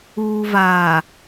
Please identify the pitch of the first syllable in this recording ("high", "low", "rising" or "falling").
low